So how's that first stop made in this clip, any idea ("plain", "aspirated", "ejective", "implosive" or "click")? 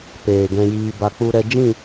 plain